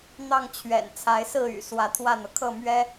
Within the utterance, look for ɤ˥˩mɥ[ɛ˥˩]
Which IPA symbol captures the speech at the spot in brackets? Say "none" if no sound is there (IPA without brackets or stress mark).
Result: ɛ˥